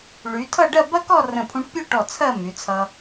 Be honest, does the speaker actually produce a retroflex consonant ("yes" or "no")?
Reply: yes